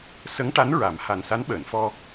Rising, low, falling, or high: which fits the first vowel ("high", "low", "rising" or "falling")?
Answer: rising